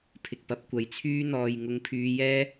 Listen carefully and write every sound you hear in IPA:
pʰ ɪ˨ k̚ p ɐ˨˥ p̚ kʷ ɐ˨ j t͡sʰ yː˥ n̪ ɔː˨ j ŋ ʊ˧ ŋ pʰ yː˧ j ɛː˥

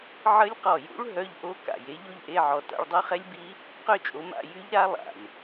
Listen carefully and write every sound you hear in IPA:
ʕ ə˦˥ lʲ q ɔ˧˩ j ṵ˦˥ ɭ ɦ œ˧˥˧ ʎ ʔ o˦˥ k a̰˧˩ j e˨˥ ʎ o˥˨ ʎ ʔ e˧˥˧ ʕ ɔ˧˩ t a̰˥˨ ɭ dˤ ø˦˥ χ ɛ˦˥ lʲ b i˦˥ | q ø˥˨ t͡ʃʼ o˨˥ m a̰˧˥˧ j y˦˥ ʎ ɾ a˦˥ lˠ a̰˩ lʲ

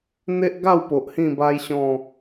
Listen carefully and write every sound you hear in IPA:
n̪ e˦ ʔ ɡ a˥˧ w p o˨ ʔ h ĩ˥˧ b a˦ j ɕ ɔ̃˥˧

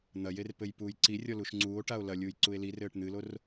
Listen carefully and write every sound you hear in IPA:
n̪ ɐ j e r p ɘ j p uː j ǀ i rʲ ɔ l u ʃ ŋ͡ǀ uː o̯ ʈ a o̯ l ɐ lʲ uː j ǀ u e̯ l i r ɘː ʈ n̪ ɨ l o r

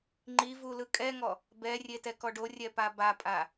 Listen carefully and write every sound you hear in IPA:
ŋ͡ǃ i v u l ɯ kʼ ɛ ŋ ɔ | b ɛ rʲ e t ɛ k ɔ ɖ o rʲ ɛ p a b a pʼ a

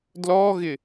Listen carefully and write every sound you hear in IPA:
d l ɔ ɣ ɪ

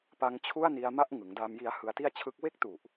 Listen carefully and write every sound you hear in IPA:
p a˦˥ ŋ t͡ɕʰ u˥˩ a̯ n i˧ a̯ m a˥˩ ʔ ŋ ɯ˩˦ ŋ d a˧ m j i˦˥ a̯ h ɯ˧ a̯ t i˥˩ a̯ t͡ɕʰ ɯ˦˥ k̚ w e˥˩ k̚ t u˨˩ ʔ

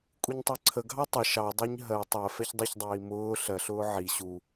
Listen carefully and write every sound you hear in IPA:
kʷʼ i ɲ tˤ ɜ ǀʰ ə ɡʱ ɑ tˤ ə ʃ ɑ dˤ ɜ ɲ ɦ ɜ tˤ ɜ f ɛ ç dˤ i ç dˤ iː m ʊː ɬ ɜ ɬ ʊː ʕ i ɕ u

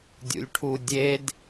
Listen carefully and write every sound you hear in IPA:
dʲ ṵ lʲ ʈʰ u dʲ e d

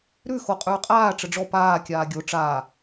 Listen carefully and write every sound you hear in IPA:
ɾ ʉ x o qʼ ʉː qʼ aː ʈ͡ʂ ə ɖ͡ʐ ɔ p aː kʲ aː ɡʲ o ʈ͡ʂ aː

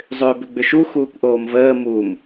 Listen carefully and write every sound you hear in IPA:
zˤ ʏː b ʏ ɡ͡b ʏ ʃ u x uː kʷ ʔ oː m v əː m u m

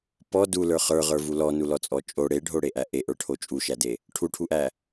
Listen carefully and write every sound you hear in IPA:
p ɔ d u l ə˞ χ ə˞ ʁ ə˞ v u l ɔ n u l ɔ t͡sʼ ɔ t͡ʃʼ o ɽ e ɖʱ o ɽ e ʔ æ ʔ e ʔ ə˞ ʈʰ o t͡ʃʼ u ʃ æ d e | ʈʰ u ʈʰ u ʔ æ

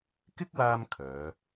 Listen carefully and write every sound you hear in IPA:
k ɪ˥ k̚ w aː˧ m kʰ œː˨˧

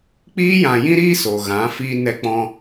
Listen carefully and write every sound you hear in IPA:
k͡p iː˦ j ã˨ j ĩ˦ ɾ iː˦ s o˨ ɣ ã˨˦ f iː˧ n ɛ˧ k͡p ɔ̃˧

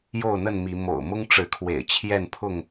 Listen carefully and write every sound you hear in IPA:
j o˥˨ ʊ̯ n̪ ə˥˨ n m i˨˦ m o̰˨˩ ʊ̯ m ʊ˦ ŋ ʈ͡ʂ ɻ̩˨˦ kʰ w ḛ˨˩ ɪ̯ t͡ɕʰ j ɛ˥˨ n pʰ ʊ˥˨ ŋ

